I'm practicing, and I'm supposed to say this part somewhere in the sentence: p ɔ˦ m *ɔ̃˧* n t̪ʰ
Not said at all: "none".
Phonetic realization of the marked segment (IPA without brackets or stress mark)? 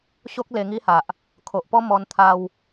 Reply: ɔ˧